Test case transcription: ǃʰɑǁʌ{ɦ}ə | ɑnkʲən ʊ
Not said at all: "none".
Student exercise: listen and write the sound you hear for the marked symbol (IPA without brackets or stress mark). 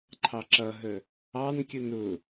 ɦ